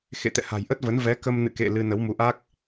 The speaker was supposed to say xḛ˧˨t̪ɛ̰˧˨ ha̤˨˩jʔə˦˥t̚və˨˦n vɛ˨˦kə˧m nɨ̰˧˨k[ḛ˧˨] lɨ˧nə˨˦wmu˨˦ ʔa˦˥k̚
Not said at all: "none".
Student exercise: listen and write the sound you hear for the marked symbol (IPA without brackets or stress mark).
ḛ˧˨